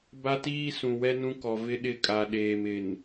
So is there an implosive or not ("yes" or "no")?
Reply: yes